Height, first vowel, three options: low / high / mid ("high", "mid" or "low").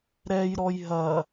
mid